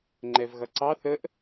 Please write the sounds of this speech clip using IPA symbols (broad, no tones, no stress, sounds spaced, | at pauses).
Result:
ŋ͡ǃ ɛ v ɣ ʌ ǀ ɑ θ ə ʔ